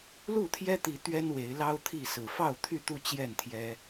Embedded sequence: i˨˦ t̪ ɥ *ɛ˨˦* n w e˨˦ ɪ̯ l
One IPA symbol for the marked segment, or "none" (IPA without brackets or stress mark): ɛ˦